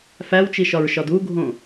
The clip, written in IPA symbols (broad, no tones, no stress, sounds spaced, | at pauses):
f æ w t͡ʃ i ʃ ɒ ɹ ʃ ɒ d u ɡʱ õ